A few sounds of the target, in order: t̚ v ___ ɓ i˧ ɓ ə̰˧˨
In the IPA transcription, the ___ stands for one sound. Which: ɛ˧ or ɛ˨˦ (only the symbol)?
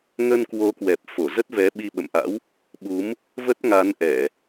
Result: ɛ˨˦